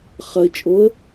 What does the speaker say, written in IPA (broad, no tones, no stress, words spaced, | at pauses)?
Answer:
χɐɪ̯ t͡ʃʼoə̯